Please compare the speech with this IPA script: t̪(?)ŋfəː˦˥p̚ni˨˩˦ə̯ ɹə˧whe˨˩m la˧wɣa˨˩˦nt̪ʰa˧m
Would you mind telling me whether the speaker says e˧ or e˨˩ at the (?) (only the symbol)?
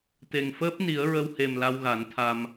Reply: e˨˩